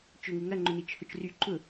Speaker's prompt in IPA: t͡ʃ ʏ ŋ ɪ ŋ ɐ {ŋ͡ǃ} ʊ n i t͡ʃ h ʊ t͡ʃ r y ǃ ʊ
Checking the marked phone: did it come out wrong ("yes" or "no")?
no